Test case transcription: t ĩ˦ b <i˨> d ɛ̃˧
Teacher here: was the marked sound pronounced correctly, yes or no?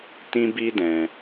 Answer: no